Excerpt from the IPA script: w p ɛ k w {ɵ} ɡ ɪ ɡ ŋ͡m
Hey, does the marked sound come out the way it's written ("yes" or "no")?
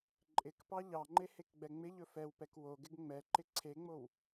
no